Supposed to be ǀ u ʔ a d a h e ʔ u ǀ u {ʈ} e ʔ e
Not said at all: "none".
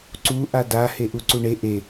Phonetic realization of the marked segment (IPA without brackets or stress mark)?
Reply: ɳ